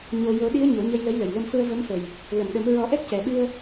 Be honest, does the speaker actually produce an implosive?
yes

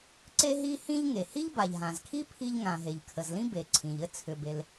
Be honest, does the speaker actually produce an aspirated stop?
yes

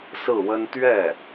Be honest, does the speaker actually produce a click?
no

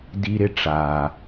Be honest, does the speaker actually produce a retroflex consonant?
yes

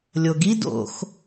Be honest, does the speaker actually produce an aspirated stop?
no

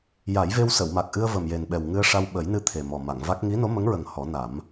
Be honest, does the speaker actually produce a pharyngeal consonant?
no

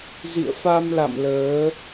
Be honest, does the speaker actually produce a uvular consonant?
no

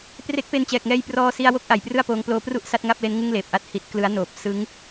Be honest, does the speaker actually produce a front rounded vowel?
no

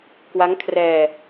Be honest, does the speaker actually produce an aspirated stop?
yes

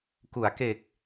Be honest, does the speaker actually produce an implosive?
no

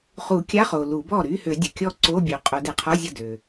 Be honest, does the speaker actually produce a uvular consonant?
yes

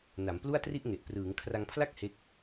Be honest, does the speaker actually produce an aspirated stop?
yes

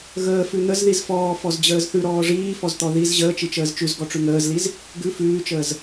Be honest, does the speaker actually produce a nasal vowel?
no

